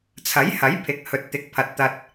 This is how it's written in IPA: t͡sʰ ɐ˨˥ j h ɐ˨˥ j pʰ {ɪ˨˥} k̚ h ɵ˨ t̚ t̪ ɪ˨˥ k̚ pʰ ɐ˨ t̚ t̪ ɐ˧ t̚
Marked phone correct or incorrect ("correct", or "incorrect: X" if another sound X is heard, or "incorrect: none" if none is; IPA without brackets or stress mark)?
correct